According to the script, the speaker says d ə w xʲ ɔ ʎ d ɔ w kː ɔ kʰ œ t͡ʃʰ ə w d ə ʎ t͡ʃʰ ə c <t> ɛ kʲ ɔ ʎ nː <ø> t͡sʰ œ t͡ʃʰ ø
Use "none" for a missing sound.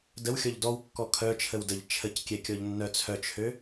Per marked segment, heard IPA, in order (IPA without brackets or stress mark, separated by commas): kʲ, œ